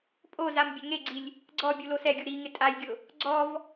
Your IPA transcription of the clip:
pʼ o z a m bʲ ɛ ŋ e ɡ͡ǀ i lʲ | ɡ͡ǀ ɔ bʲ u l o s ɛ ɡʲ u ɾ i ŋ ɪ tʼ a j ɡʲ ʊ | ɡ͡ǀ ɔ v

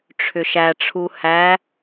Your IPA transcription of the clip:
ʈ͡ʂʰ ʏ ʃ æ ʈ͡ʂʰ u h æ

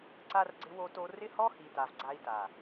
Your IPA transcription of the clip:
ǀ a˦ r ɡ͡ǀ ɪ˦ w o˦ t o˦ r ɪ˦ h ɔ˦ h i˨ t a˨ v ɡ͡ǀ a˦ i̯ t a˨

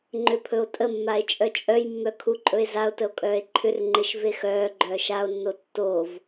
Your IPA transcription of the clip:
ŋ͡ǃ ʏ pʰ ɵ o̯ tʼ ə mː a e̯ t͡ʃʼ œ t͡ʃʼ œ j mː œ kʰ u ǃʼ ɵ e̯ z a o̯ t ə o̯ kʼ œː e̯ ǃʰ ʏ r ŋ͡ǃ e ʃ v e x œː ɡ͡ǃ œː ʃ a o̯ nː o tː o v

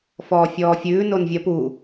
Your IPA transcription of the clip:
f ɔː fʲ ɔː fʲ ʉː n o n vʲ ɐ p u

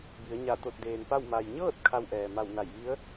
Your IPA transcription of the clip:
b i˩˧ ə̯ ɲ a˧˩ t̪ o˧˩ t̚ d eː˩ n p a˥˨ w m a˩ j ɲ ɤː˥˨ t̚ kʰ a˧ w ʔ ɛː˩ m a˧˩ w n a˧˩ j ʋ i˧˥ ə̯

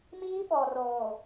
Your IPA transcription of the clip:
m iː˦ ɓ ɔ˨ r oː˨

